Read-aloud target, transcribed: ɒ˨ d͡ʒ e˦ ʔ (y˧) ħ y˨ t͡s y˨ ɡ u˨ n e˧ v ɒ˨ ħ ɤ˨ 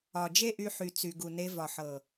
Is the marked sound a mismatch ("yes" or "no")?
no